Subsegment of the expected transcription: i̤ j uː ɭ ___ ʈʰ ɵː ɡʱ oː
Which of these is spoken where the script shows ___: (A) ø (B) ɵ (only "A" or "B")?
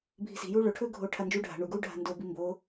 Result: B